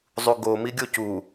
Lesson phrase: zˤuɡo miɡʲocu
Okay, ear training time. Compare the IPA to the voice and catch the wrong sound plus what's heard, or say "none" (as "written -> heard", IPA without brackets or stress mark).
none